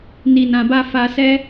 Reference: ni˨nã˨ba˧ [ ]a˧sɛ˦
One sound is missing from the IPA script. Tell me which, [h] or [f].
f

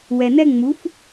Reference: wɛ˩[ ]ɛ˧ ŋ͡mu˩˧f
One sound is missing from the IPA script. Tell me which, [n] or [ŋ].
n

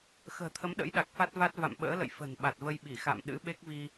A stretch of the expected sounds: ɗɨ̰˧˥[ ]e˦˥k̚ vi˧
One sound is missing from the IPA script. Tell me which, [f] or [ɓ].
ɓ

